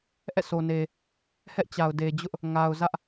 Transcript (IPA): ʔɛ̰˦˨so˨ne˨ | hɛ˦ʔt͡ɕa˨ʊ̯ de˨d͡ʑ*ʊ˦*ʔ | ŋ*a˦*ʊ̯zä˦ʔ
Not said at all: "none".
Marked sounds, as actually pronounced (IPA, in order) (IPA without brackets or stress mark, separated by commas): ʊ˦, a˨